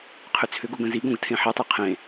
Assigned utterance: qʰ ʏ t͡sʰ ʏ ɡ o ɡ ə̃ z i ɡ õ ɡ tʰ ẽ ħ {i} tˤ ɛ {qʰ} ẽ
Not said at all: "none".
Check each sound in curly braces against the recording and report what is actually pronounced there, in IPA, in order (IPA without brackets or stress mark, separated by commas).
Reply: i, qʰ